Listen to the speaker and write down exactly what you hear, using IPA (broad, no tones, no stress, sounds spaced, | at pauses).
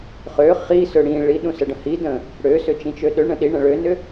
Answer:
χ ø χ i s ø ɽ ĩ ɭ i ɗ ũ s ə ɖ ə̃ h i d ə̃ | ɽ ø s ʏ t͡ʃ ĩ t͡ʃ ø ɗ ø ɳ ə̃ ɗ i ɳ ə̃ ɭ ø n ʏ